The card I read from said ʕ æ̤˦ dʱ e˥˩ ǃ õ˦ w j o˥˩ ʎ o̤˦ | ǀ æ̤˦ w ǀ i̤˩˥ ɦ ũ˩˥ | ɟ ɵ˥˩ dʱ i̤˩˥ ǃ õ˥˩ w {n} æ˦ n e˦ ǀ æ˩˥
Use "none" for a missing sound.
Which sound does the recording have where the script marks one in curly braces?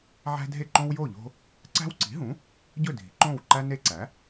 ǃ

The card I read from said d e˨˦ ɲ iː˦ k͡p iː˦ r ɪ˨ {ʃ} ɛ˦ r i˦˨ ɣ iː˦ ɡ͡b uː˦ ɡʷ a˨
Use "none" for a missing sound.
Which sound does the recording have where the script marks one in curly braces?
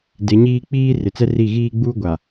t͡s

